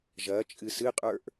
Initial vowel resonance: oral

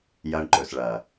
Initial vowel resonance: oral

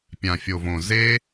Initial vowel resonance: nasal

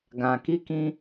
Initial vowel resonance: nasal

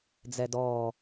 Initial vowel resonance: oral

